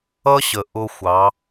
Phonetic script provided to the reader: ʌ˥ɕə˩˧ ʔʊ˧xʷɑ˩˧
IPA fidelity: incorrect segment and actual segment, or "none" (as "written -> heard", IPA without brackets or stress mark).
none